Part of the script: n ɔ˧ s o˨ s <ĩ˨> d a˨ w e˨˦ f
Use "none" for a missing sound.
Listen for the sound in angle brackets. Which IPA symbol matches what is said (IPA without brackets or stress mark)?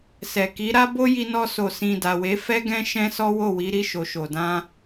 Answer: ĩ˨